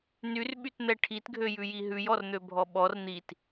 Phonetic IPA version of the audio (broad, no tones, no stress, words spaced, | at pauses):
nyrɓytn̪ɛ ʈʰitɡʱøjʉji ɦʉjɔrn̪øbʱɔ ɓɔr n̪it